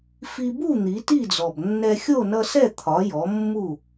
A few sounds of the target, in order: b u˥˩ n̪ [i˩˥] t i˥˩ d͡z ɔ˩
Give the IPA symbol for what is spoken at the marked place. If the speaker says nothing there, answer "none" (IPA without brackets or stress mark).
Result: i˩˥